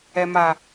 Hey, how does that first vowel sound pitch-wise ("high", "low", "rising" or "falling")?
low